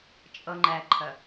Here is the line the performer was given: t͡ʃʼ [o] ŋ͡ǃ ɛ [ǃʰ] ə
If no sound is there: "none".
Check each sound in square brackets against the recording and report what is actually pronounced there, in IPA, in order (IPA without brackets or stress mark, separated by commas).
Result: ɤ, ǃʰ